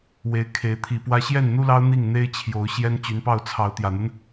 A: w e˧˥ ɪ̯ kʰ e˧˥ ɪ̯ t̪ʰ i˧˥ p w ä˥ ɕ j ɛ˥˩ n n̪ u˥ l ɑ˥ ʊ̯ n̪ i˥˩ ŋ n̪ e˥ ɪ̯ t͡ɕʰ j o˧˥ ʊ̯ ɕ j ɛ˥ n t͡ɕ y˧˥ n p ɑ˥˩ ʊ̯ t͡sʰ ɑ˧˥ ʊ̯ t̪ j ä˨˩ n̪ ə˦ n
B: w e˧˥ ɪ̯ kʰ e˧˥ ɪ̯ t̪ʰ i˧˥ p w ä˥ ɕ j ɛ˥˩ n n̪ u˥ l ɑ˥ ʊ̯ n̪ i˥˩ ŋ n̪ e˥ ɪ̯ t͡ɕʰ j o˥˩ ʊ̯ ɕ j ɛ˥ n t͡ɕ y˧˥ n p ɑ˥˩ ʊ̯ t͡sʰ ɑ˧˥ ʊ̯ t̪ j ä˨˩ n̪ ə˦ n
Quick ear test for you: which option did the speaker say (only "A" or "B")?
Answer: A